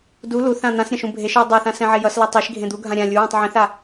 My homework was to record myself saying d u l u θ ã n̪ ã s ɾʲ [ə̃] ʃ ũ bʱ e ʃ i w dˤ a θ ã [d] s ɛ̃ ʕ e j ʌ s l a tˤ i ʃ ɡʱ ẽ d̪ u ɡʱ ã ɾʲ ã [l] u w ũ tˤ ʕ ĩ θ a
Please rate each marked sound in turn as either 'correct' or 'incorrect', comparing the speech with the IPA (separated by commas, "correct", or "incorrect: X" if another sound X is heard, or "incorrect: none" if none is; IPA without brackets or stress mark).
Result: incorrect: ã, incorrect: none, incorrect: lʲ